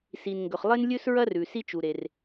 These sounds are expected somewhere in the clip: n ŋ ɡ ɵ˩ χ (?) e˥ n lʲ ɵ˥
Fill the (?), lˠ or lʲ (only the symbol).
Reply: lˠ